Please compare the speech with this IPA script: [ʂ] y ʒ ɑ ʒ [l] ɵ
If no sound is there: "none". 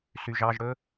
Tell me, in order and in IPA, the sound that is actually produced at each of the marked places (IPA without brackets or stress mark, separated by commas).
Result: s, ɽ